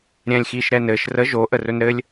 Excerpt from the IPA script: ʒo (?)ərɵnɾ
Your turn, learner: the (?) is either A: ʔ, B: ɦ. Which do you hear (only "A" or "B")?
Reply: A